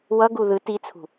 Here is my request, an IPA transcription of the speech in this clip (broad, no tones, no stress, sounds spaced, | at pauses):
w ʌ ɡ u ð ɯ t i t͡sʰ ṳ